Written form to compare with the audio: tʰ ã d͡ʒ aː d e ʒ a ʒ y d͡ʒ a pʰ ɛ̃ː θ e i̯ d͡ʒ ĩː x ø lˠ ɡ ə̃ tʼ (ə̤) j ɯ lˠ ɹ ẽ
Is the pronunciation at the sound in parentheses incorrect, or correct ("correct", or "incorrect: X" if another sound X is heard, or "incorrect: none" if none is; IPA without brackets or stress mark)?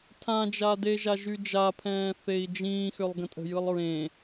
correct